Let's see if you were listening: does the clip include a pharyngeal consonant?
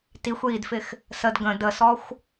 no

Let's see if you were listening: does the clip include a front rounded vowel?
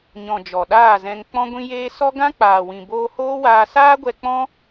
no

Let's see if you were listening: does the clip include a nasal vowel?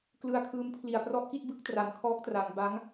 no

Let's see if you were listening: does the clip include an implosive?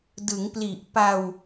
no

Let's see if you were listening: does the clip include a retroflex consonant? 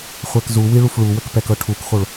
yes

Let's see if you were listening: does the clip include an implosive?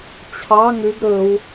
no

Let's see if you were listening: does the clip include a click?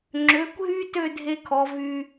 yes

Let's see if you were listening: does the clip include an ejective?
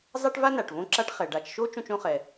no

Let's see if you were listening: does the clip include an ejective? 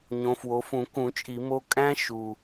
yes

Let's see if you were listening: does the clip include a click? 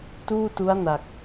no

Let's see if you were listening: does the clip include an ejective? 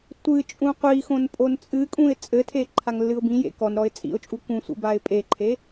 yes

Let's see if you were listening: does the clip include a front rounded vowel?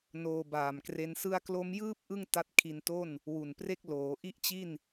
no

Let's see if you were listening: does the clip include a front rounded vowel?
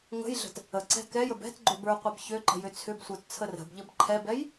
yes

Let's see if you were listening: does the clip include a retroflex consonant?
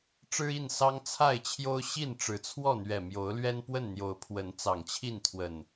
yes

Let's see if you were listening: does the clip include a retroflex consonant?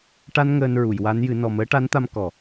yes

